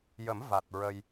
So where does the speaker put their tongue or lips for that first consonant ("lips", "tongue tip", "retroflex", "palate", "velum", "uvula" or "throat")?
palate